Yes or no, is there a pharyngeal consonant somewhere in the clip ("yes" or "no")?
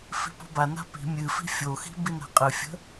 no